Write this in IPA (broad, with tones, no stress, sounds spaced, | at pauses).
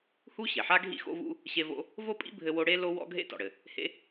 h u˥ ɕ e˩ ħ a˥ ɡʱ ḭ˥ x o̰˥ v ṵ˥ | ɕ e˥ v o̰˥ | v o˥ pʼ ḭ˥ bʱ ɘ˥ w o˥ ɽ e˥ l o˥ w ɔ̰˥ ɡʱ ḛ˥ t ɔ̰˩ ɽ ɘ˩ | h ḛ˥